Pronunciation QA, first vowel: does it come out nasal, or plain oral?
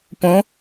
nasal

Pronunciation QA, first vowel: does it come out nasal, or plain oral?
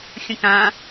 nasal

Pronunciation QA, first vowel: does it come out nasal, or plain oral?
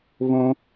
nasal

